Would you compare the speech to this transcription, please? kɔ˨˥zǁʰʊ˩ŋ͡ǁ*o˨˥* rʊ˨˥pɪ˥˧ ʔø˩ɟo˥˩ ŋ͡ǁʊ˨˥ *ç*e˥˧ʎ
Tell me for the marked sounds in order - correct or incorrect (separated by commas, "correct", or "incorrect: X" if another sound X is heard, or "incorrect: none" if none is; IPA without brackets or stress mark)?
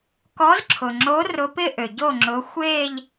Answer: correct, incorrect: xʷ